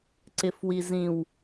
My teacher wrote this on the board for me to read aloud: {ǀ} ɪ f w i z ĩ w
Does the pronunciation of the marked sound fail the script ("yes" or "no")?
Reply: no